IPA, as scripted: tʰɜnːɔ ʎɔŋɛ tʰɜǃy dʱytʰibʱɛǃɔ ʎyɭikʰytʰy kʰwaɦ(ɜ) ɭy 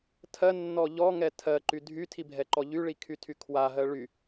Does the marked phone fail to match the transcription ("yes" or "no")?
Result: no